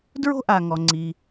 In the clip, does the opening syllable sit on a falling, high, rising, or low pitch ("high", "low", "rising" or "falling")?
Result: high